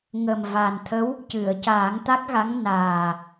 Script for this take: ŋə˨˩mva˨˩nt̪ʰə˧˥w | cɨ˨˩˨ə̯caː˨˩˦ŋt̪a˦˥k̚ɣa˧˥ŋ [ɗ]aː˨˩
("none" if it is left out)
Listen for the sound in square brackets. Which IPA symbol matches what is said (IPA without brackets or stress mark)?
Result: n